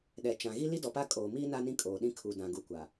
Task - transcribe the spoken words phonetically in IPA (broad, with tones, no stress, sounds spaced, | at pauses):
ɗ ɛ˨ t͡ʃ ã˨ ɣ i˦ l i˦ d ɔ˨ p a˦ kʼ oː˨ m iː˦ n a˦ n ĩ˦ kʼ oː˨ ɗ ĩ˦ kʰ u˨ d ã˨ ɡ u˨ kʷ a˨